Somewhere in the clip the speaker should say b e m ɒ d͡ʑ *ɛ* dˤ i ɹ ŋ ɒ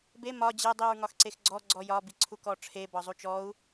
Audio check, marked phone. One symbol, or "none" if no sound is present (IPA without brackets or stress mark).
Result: e